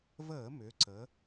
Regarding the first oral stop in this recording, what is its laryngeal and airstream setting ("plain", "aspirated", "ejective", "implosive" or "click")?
click